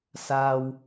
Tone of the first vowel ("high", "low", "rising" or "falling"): high